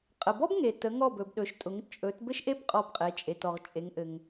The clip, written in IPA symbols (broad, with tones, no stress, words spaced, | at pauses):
qʼə˩bɔ˥bŋe˩ tə˩˧ŋɔ˧˩bɵ˩b ɗɵ˩˧ʃtʼʊ˩˧ŋ t͡ʃʼɵ˩˧t bɘ˥ʃʔe˥bqʼɔ˧˩bqʼe˩˧ t͡ʃʼe˩tɔ˩ʁt͡ʃʼe˩˧ŋʔɘ˩ŋ